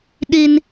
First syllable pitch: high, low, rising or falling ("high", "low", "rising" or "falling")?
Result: high